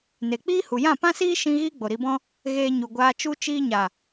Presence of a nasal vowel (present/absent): present